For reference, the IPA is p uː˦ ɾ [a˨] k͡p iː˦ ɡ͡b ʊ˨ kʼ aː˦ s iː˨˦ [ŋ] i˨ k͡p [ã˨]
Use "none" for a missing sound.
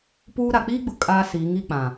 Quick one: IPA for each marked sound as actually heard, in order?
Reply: a˨, ŋ, ã˨

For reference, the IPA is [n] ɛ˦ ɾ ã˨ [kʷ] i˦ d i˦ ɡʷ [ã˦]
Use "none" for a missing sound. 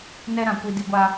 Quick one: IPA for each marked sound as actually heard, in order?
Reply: n, kʷ, a˦

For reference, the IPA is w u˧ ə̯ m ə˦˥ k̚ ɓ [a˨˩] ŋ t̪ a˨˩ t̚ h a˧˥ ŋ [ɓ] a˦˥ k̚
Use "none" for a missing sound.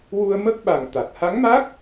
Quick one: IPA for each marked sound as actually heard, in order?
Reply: a˨˩, m

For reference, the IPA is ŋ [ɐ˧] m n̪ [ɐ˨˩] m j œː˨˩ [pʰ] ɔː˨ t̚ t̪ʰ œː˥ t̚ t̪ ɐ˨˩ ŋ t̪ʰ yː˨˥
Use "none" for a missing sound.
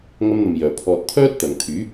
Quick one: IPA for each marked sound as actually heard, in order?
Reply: ɐ˧, ɐ˨, pʰ

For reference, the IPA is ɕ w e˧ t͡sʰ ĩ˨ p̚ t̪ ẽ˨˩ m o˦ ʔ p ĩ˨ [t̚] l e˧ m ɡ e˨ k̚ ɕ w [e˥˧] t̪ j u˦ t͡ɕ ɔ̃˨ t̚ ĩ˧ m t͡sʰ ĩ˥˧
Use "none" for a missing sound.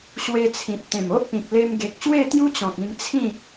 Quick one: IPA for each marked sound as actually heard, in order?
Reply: k̚, e˥˧

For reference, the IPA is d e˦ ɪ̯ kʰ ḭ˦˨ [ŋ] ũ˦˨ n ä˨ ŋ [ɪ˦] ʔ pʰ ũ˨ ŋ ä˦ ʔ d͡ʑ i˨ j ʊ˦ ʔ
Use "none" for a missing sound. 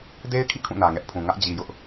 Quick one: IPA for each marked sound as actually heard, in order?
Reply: kʰ, ɛ˦

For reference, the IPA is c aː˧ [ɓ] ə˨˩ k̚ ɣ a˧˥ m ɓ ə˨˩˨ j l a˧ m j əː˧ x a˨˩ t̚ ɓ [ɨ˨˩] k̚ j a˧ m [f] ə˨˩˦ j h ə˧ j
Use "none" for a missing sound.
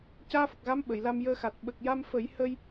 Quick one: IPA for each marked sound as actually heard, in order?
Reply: f, ə˨˩, f

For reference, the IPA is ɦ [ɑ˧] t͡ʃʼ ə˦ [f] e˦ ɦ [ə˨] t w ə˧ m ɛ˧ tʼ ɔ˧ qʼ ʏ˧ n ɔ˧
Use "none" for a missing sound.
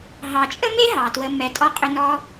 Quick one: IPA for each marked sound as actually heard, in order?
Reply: ɑ˨, m, ɑ˨

